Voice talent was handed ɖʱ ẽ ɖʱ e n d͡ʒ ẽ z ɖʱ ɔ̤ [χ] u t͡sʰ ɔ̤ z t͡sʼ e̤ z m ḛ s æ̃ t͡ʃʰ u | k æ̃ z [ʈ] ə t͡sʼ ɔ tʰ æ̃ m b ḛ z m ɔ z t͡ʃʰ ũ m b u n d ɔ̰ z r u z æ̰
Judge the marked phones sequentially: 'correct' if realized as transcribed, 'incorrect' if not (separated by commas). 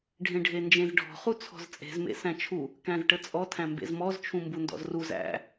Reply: correct, correct